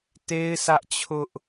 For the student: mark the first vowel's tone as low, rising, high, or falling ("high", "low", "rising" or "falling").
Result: high